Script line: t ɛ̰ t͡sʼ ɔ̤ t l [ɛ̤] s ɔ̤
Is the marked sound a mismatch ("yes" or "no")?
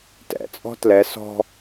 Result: yes